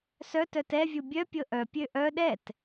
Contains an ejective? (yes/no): no